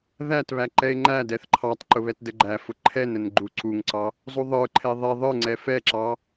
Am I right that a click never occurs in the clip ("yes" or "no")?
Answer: no